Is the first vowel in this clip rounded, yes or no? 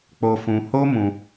yes